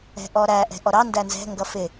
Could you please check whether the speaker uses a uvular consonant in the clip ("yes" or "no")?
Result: no